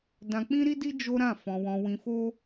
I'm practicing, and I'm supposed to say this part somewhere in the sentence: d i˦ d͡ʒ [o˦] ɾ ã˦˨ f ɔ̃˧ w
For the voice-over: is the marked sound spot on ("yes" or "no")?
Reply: yes